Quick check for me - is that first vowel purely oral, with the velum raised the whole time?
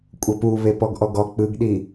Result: yes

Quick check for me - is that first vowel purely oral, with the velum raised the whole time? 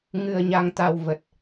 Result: yes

